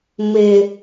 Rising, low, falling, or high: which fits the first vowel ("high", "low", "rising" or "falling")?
low